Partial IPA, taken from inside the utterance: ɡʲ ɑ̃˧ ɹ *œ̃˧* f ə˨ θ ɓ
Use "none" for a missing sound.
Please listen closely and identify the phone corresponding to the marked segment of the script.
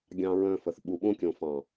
œ̃˧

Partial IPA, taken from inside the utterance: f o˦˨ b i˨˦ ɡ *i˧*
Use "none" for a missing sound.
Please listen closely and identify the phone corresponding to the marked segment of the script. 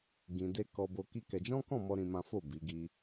i˧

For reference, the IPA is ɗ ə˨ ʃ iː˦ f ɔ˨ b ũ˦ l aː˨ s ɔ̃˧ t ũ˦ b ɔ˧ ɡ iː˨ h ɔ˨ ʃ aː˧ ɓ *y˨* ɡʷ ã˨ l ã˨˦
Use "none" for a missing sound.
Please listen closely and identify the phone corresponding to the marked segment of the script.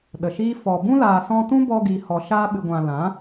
ɨ˨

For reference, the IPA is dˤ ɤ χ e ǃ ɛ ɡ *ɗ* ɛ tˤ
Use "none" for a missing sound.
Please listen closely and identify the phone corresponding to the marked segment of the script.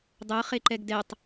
d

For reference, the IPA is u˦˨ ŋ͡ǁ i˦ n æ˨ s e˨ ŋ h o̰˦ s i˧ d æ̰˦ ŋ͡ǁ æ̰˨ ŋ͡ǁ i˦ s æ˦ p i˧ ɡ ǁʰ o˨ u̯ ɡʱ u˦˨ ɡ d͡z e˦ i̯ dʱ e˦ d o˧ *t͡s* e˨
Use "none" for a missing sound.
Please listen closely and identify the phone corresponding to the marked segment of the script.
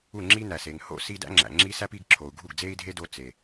t͡s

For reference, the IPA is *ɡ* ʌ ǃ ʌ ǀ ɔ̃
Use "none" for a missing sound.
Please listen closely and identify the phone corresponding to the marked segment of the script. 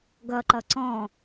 ɡ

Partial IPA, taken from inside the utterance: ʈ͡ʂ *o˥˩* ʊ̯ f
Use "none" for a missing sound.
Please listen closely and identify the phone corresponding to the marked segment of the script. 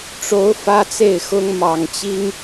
o˧˥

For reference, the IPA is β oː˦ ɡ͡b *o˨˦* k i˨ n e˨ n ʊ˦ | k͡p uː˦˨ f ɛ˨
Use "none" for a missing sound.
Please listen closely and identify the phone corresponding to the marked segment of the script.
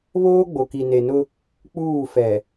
o˨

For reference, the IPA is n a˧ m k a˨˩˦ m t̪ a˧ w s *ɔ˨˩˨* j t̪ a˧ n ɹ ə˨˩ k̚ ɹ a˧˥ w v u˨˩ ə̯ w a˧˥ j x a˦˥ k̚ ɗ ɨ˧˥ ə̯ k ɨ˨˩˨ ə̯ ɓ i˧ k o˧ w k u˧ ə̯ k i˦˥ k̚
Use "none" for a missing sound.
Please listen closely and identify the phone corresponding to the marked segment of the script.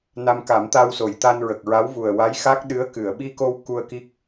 o˨˩˨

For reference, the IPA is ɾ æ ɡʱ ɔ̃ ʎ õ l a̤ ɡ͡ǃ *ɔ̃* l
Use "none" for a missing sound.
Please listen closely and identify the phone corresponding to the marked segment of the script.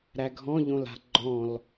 ɔ̃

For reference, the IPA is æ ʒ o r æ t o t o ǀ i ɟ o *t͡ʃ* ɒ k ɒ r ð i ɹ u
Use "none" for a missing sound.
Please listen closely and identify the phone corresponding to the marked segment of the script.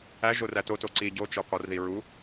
t͡ʃ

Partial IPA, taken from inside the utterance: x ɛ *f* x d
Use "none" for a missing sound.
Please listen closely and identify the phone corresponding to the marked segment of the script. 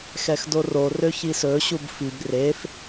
none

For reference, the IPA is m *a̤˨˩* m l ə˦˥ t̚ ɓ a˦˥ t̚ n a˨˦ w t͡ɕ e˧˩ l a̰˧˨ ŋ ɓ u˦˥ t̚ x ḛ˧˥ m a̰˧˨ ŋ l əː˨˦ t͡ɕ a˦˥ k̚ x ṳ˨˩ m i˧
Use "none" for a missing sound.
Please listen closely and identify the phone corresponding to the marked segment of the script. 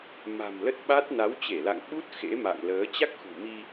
a̤˨˩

